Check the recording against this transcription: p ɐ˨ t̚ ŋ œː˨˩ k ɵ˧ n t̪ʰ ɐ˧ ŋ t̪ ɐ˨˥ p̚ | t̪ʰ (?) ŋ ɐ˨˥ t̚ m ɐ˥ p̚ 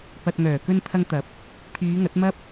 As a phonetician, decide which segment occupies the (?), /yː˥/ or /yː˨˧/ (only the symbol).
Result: yː˨˧